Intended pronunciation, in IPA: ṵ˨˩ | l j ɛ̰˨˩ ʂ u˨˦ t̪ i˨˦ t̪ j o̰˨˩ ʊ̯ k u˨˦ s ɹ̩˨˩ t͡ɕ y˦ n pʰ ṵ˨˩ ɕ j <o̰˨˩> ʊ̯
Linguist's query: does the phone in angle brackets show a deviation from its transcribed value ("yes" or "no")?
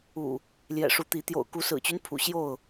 yes